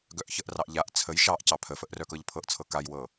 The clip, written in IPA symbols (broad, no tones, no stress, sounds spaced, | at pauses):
ɡ œ ʔ ç ə ʔ r ɑ ʔ ʎ a ʔ t͡sʰ ə j ʃ ɑ ʔ c ɑ pʰ ə f ə ʔ r œ k ɤ ʎ pʰ ɤ ʔ t͡sʰ ɤ k a j w ɤ